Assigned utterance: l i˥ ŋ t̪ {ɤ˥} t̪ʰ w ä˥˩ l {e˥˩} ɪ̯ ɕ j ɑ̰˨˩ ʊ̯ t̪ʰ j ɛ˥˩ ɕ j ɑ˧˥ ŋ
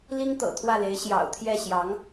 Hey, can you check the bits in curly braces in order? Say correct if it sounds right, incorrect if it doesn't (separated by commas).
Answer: incorrect, incorrect